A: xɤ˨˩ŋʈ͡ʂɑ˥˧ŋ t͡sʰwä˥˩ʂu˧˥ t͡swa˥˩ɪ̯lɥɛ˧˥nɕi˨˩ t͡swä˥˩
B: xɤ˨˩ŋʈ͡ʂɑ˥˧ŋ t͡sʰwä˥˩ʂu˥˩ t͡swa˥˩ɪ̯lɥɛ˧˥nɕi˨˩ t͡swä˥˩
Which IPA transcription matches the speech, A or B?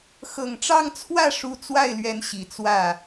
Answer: A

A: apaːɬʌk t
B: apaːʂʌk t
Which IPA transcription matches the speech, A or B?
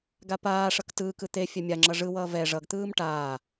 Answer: B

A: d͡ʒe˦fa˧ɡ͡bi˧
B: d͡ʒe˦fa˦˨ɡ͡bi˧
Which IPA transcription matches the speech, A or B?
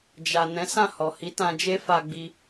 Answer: A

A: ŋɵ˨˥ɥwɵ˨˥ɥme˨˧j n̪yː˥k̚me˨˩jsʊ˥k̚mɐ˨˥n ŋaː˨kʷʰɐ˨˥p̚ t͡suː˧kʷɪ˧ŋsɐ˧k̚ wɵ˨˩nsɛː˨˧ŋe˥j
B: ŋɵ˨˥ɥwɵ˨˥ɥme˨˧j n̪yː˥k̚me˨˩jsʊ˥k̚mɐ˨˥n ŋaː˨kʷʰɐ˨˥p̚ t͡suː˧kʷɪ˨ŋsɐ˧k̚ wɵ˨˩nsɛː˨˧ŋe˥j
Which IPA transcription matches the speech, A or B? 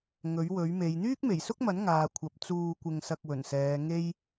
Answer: A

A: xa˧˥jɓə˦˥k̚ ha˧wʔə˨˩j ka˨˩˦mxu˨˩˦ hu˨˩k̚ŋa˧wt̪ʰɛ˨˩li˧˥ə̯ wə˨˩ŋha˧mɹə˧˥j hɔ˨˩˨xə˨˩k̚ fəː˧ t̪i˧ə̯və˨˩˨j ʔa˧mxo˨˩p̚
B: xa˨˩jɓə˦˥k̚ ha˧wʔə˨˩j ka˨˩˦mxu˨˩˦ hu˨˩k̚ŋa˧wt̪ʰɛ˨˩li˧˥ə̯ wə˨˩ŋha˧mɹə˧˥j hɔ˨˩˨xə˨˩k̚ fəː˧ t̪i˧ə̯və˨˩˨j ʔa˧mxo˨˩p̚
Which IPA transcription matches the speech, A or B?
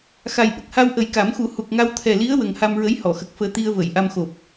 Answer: B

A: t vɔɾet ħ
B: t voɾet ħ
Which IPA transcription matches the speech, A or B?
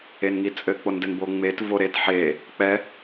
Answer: B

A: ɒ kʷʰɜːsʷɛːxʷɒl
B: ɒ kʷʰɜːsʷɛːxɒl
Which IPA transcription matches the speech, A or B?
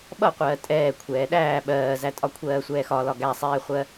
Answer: B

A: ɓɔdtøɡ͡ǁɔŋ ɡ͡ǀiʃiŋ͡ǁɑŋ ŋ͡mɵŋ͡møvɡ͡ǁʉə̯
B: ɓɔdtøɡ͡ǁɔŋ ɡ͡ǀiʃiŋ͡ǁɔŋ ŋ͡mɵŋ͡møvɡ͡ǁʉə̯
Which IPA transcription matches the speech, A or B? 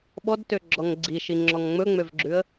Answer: B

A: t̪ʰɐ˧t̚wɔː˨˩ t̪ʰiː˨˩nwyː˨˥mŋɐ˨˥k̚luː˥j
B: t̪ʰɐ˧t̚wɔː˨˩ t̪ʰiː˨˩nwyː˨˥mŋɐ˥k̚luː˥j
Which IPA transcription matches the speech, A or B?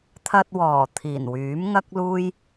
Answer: B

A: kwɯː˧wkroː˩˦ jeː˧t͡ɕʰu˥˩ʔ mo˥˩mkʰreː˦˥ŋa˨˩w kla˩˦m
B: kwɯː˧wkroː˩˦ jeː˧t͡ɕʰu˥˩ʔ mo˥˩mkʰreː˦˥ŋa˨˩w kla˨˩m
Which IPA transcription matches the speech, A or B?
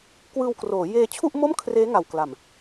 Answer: B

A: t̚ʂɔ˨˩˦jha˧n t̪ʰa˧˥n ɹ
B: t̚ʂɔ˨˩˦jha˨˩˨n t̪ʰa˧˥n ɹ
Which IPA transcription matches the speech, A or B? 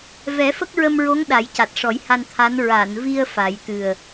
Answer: A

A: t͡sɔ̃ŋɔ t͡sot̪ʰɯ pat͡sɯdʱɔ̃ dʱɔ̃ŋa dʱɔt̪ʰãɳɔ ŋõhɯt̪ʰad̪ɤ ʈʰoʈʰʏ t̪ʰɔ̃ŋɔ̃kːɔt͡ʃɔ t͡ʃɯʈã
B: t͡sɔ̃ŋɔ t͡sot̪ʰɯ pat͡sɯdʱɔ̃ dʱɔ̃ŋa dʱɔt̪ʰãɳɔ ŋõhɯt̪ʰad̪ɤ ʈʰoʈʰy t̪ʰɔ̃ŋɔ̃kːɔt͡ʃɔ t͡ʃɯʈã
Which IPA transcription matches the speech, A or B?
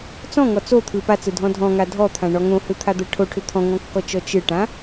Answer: A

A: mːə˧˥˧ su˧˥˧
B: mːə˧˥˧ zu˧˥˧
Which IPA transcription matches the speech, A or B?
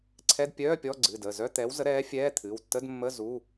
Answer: B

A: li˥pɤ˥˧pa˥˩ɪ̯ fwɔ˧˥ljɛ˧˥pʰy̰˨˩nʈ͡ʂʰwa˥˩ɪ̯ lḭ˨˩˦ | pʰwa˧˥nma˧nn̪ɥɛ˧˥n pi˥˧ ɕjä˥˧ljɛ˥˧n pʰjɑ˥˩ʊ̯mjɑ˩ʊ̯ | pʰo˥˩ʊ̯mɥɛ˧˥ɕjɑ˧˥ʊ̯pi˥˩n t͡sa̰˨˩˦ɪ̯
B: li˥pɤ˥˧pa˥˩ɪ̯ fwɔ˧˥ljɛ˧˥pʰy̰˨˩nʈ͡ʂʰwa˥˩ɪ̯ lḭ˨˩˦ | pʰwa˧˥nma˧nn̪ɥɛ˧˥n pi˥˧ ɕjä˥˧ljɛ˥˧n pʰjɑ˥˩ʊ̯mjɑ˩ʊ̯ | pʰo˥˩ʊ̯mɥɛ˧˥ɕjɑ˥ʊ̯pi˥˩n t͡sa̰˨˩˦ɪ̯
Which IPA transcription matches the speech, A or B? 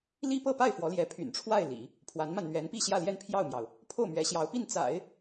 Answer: A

